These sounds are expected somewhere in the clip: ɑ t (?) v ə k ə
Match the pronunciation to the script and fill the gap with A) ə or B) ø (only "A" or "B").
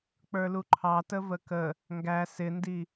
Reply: A